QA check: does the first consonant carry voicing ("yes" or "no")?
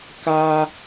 no